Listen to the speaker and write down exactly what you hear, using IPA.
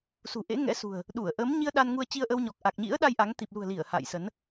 s ṳ˨˩ ʔ ḛ˧˥ ŋ ɛ̰˧˥ s ṳ˨˩ ə̯ | ɗ u˧˩ ə̯ ʔ əː˨˦ m ɲ i˧ ə̯ ɗ a˧ n ŋ u˧ ə̯ t͡ɕ i˧ ə̯ ʔ ə˧ w ɲ ɔ˨˩ k̚ ʔ a˨˩ k̚ ɲ ḭ˧˥ ə̯ ɗ a˧ j ʔ a˨˦ ŋ t̪ i˨˩ p̚ l ṳ˨˩ ə̯ l i˧˩ ə̯ h a̰ː˧˨ j s ə˨˦ n

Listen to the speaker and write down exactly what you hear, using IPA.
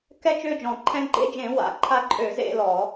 k ɛ˦ t͡ʃ ø˥˨ d͡ʒ ɔ̃˧˩˧ ǃʰ ɛ̃˦ ɡ͡ǃ ḛ˦ d͡ʒ ẽ˧˩˧ w a̰˧˩˧ ǃʰ a˦ ǃʼ ø˧˩˧ z ḛ˥˨ l ɔ˧˩˧

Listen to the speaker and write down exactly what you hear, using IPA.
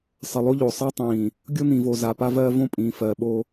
sˤ ə˨ lˠ o˦ ʎ o˨ sˤ ɜ˦ tˤ ĩː˨ | ɡʲ o˦ n̪ ĩ˨ v o˨ z a˨ p a˦ v ɜː˦ v õ˦ pʼ ĩː˨ f ɜ˨ ɓ o˦

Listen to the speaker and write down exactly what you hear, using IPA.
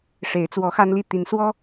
ʂ e˨˦ ɪ̯ t͡s w ɔ˨˦ x a˦ n l i˥˨ t̪ i˨˦ n s w ɔ˦

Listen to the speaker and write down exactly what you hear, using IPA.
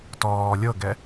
t ɔː lʲ ɤ ɡ ɛ

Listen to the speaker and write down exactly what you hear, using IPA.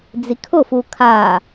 d͡z i kʰ ʊ f u kʰ a

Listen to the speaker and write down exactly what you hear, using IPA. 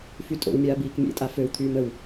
f y tʼ o̰ w mʲ aː b iː k mʲ ḛ tʼ a f ø w t̪ʰ yː m ə w

